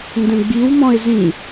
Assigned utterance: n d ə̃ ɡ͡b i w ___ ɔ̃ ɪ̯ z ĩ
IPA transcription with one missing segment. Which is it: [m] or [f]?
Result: m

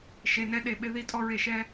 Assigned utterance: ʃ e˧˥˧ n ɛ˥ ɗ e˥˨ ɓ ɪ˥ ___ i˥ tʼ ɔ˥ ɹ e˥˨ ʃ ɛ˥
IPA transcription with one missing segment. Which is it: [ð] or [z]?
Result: ð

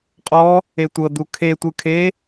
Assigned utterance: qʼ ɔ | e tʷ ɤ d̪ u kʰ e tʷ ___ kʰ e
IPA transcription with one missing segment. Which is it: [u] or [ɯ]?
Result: ɯ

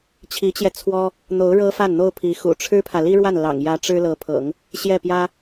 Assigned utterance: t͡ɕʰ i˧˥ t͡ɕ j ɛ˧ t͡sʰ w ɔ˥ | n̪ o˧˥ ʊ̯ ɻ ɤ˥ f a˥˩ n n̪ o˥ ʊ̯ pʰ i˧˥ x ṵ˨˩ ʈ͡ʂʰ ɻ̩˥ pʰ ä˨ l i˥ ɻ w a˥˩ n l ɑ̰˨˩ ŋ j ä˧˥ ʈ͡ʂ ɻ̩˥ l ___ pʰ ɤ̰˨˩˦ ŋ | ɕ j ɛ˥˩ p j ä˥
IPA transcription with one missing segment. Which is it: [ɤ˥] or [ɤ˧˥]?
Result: ɤ˧˥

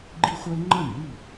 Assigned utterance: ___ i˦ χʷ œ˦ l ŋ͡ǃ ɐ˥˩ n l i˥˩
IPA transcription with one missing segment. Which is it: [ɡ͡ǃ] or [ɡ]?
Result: ɡ͡ǃ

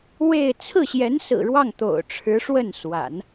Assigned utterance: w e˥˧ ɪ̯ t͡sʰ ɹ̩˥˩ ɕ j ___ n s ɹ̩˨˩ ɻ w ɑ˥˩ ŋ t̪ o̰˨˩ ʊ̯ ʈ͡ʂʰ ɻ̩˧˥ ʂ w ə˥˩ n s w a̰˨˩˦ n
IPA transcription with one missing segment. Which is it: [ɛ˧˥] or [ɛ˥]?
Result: ɛ˧˥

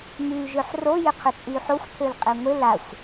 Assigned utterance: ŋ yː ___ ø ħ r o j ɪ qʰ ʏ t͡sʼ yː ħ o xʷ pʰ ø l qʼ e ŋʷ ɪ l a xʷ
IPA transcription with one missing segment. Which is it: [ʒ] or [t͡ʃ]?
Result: ʒ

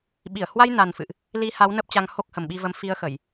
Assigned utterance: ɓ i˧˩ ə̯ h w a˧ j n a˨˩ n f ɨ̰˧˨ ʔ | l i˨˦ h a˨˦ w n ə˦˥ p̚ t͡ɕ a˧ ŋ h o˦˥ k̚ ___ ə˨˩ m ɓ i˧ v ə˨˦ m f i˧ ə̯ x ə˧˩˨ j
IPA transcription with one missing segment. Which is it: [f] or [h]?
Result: h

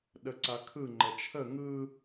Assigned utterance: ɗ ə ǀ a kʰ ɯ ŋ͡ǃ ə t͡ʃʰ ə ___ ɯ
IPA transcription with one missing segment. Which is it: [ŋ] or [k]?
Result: ŋ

